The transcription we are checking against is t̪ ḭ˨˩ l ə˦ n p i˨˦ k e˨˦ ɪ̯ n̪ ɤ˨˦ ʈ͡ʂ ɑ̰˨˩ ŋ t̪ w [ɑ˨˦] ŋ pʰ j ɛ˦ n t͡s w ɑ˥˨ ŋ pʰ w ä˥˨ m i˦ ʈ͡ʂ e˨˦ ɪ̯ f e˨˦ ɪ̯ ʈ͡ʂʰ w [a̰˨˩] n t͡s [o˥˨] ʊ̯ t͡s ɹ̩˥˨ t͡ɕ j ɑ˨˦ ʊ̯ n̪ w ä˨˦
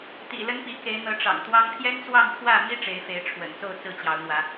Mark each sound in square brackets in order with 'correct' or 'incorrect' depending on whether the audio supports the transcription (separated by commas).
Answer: incorrect, incorrect, correct